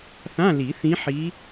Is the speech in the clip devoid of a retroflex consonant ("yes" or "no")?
yes